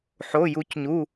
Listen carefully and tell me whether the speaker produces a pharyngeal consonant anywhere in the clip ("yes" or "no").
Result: yes